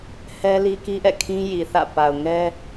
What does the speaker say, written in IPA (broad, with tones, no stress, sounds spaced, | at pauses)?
h ɛ˦ l i˦ k i˦ ʔ ɛ̰˦˨ kʰ ĩ˦ j i˨ θ ä̰˦˨ p a˨ ʊ̯ ŋ ɛ˦